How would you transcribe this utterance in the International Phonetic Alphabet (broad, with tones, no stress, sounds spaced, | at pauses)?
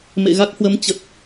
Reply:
m ḛ˧˨ ɣ a˦˥ k̚ h w ə˨˦ m t͡ɕ ə˨˩ t̚